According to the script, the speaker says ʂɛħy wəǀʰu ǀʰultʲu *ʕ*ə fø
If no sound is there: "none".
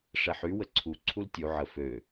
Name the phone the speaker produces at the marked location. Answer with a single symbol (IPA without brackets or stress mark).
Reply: ʕ